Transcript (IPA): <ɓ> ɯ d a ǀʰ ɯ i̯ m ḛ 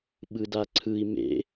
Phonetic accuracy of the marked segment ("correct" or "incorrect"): correct